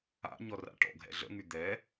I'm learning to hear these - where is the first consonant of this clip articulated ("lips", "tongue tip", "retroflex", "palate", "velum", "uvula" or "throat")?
palate